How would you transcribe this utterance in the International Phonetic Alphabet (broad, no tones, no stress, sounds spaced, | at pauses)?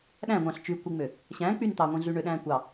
ɗ æ̃ ŋʷ ɑ̃ ɬ t͡ʃ y kʷ i ŋ͡m ø | ɕ æ̃ k͡p y n t̪ ɑ ŋʷ ĩ ɮ y ɳ ø ɗ æ̃ː kʷ ɑ